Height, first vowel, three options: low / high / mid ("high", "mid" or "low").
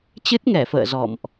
high